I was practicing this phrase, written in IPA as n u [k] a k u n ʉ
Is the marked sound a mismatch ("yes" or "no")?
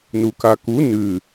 no